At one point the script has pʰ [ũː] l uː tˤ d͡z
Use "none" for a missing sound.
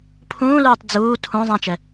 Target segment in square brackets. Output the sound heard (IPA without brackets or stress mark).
ũː